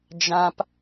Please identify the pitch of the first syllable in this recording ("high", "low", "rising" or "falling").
high